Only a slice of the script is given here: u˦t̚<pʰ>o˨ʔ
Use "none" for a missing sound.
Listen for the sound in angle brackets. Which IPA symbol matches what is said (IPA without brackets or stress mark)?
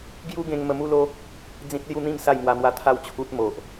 m